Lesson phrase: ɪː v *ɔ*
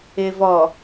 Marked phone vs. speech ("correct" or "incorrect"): correct